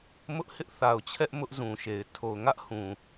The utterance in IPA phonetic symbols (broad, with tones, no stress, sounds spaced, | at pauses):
m ʊ˦ ʔ h ɪ˦ ʔ θ a˨ ʊ̯ t͡ɕʰ ɛ˦ ʔ m ʊ˦ ʔ z ũ˨ ʃ e˨ ɪ̯ tʰ o˨ ʊ̯ ŋ ä˦ ʔ h ũ˨